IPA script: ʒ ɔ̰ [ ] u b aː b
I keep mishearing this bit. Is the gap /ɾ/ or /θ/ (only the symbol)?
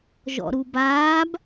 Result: ɾ